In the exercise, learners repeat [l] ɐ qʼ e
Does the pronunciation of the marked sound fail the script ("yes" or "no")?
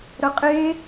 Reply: yes